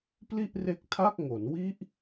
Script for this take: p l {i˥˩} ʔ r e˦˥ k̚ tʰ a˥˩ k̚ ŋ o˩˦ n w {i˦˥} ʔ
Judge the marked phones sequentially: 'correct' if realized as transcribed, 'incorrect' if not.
correct, correct

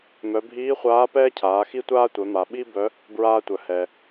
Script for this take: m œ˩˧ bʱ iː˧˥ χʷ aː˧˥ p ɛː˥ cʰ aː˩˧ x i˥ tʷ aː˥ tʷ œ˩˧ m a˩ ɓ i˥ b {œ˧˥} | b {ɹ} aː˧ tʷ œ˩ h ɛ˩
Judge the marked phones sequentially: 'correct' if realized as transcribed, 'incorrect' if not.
correct, correct

